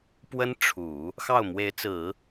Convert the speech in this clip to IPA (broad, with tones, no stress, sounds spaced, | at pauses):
p w ə˥ n ʈ͡ʂʰ u˨˩˦ | x ɑ˥˩ ʊ̯ m w e˧˥ ɪ̯ t͡s ɹ̩˨˩˦